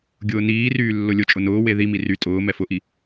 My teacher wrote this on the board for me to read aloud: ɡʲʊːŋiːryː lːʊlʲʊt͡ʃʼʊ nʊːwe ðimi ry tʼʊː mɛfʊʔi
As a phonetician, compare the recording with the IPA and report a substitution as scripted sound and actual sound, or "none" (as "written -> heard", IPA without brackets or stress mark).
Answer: ŋ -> n